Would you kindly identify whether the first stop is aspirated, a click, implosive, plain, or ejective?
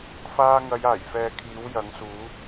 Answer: aspirated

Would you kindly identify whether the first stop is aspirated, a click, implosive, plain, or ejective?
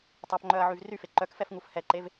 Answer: plain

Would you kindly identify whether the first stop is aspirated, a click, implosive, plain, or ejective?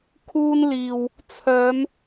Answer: aspirated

